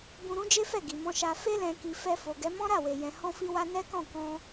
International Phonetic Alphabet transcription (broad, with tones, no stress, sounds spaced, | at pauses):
b ũ˧ ɾ ũ˦ d͡ʒ e˦ f ɛ˦˨ ɡ i˨ m ɔ̃˧ ʃ a˧ f e˧ l ɛ̃˨ k i˨ f ɛ˧ f o˨ ɡ ɛ˨˦ m ɔ̃˦ ɾ a˦˨ w e˨ j ɛ̃˨ h ɔ̃˧ f i˧ w a˧ n ɛ˦ k ɔ̃˦˨ k ɔ̃˧